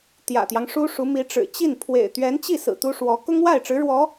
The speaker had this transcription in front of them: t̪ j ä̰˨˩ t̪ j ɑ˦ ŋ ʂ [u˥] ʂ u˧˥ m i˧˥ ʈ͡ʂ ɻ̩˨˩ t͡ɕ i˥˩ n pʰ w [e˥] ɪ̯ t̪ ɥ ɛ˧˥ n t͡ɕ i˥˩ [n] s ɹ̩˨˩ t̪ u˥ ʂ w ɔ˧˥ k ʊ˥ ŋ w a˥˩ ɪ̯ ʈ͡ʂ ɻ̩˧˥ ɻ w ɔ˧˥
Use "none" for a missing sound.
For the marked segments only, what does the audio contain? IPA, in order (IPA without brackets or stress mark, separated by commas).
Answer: u˥, ḛ˨˩, none